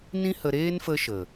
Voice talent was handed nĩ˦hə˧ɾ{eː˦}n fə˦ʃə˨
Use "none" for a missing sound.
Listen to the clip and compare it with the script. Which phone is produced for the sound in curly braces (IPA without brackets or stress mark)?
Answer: eː˦